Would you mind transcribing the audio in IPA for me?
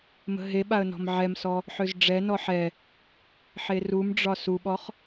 m ə̤ ɦ e ɓ a ə̯ n ɔ̤ m ʕ ɛ m s ɔ | ħ ø z ɖ͡ʐ ɛ n ɔ ħ ɛ | ħ e r u m ɖ͡ʐ ɒ s u ɓ ɔ χ

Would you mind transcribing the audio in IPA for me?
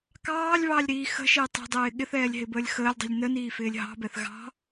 k ɑː lʲ β ɑː lʲ ɾ iː x ə̤ ʃ ɪː tˤ i̤ dˤ ɪː ɠ ɪ θ ɛː lʲ ɦ ɪ b əː lʲ x əː lʲ dˤ i̤ lʲ n ə n iː f ɪː lʲ ɦ ɑ̤ b ɛ θ ɣ ɑ̤

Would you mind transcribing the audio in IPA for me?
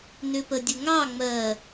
n ʏ p ə dʲ ə ŋ ɑ ŋ͡m ɜ

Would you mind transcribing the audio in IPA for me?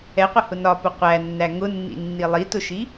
ɛ qʷ ə h ʊ n ɒ p ʊ qʷ æ nː æ ŋ ʊ nː ḭ nː i lˠ i t ʊ ʃ i

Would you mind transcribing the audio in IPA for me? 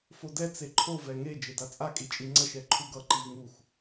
f o d ɛ t͡s e ǃʰ o v ɛ ŋ e d͡ʒ e d a t͡sʼ a kʼ i t͡ʃʼ i ŋ͡ǀ ʌ ʃ ɛ ǃʰ u ɡ ʌ ǃ i v ŋ u x

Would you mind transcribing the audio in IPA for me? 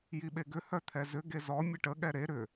j i ɓ e ɡ ʏ h œ t̪ʰ ɛ z ʏ ɡ e z ɔ mʲ ə ʈ ə ɠ ɛ ɾ e ɾ ʏ

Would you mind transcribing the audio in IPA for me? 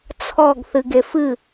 t͡sʰ ɔ ɡ θ ɨ ɡ e f ɨ

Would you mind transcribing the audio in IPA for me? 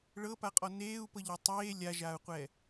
ɭ ɤ p a qʼ ɔ n eː u̯ p ɤ ʎ e tˤ eː lʲ a ʒ aː u̯ qʷ ɛː

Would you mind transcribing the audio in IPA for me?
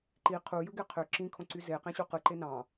ǃ i qʰ u j ɯ ɡ e qʰ ø ǁ ĩ kʰ õ ǀ y z e q ẽ ɕ u q ɯ ǃ e n ɑ̃

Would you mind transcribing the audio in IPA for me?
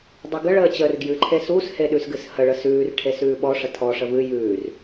dˤ ʉ ɡ ə ɭ əː t͡ɕ əː r ɡ j ɨ ǃʰ e s u s h e ɗ ʉ s ɡ ɨ s h ə ɭ ə s ʉː r ʈʰ e s ʉː ɓ ɔ ʂ ə tʰ ɔ ʂ ə v ɨ j ʉː r

